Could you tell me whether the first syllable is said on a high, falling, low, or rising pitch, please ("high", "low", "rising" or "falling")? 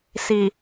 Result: low